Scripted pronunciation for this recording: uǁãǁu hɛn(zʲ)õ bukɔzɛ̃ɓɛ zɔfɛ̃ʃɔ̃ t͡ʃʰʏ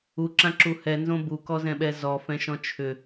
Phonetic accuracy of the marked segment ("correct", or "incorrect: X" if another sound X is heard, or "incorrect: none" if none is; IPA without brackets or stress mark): incorrect: z